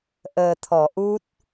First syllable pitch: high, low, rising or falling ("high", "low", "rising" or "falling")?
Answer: low